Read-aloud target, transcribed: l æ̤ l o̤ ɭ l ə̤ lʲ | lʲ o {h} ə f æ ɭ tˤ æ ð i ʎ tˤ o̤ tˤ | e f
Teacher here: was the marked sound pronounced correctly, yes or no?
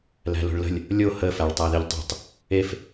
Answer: yes